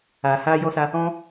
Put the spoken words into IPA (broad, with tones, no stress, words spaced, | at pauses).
aː˨ haː˧jɔ˧sa˧ | ɔ̃˦